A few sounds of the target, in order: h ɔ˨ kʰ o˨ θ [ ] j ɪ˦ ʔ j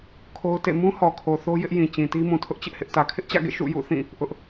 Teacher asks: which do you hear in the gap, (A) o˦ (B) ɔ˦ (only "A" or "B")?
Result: A